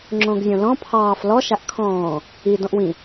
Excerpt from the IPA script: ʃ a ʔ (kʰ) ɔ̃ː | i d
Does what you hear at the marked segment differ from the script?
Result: no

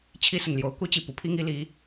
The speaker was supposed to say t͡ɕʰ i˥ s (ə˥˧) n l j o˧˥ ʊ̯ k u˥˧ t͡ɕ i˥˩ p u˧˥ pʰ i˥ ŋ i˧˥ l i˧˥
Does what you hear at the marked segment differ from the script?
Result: yes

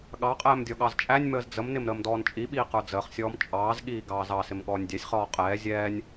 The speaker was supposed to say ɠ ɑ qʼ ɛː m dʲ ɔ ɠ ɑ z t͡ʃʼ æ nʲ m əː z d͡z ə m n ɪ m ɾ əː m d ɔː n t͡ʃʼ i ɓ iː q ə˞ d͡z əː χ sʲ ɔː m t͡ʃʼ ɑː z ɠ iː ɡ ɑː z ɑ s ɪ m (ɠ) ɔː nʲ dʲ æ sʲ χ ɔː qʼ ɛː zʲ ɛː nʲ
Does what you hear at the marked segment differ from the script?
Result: no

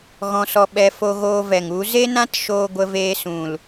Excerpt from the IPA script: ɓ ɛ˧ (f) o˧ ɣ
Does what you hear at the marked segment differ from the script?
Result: no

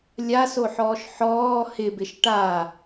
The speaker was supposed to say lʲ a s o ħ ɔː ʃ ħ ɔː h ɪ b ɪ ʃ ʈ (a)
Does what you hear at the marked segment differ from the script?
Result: no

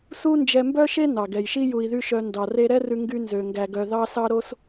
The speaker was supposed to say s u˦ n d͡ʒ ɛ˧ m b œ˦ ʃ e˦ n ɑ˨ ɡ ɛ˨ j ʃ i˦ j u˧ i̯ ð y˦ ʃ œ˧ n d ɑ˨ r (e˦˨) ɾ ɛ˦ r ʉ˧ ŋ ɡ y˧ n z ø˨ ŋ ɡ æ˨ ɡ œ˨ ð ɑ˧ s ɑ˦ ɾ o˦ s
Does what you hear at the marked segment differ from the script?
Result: yes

